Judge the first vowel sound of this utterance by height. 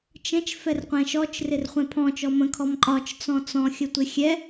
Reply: mid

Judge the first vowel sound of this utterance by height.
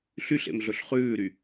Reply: high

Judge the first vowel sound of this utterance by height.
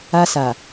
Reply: low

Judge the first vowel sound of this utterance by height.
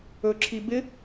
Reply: mid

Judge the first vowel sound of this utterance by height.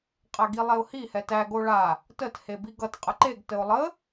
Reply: low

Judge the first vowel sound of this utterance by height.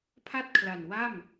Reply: low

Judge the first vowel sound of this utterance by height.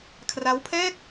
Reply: low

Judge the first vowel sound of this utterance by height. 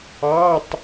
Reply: low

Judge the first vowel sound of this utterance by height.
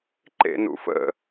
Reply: mid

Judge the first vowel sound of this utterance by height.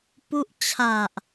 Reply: high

